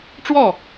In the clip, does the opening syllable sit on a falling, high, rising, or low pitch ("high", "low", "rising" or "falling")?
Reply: falling